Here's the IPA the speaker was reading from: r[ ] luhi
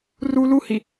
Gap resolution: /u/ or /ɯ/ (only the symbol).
u